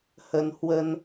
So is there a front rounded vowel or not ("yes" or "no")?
no